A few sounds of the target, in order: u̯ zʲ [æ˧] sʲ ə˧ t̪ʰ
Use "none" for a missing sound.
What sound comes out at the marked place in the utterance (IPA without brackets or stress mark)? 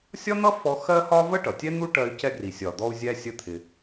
æ˧